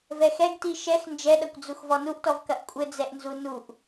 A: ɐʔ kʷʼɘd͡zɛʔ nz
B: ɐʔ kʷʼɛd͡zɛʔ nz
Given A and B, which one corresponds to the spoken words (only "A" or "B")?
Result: A